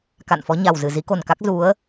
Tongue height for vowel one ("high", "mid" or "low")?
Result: low